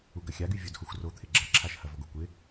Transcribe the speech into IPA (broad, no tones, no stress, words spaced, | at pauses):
uɡɐxʲaɡy vʲodhoxʷro t̪ʰɪɡ͡ǁɐǁʰaʃ hɐvɔɡokʷɪ